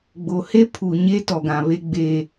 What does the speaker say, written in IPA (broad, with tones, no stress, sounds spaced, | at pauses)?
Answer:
ɡ͡b o˨ h e˦ pʰ u˨ ɲ e˦ t ɔ˨ ɡ ã˨ β e˦ ɡ͡b eː˦